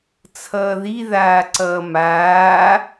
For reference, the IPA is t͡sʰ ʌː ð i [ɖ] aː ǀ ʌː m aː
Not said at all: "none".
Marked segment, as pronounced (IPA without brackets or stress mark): ð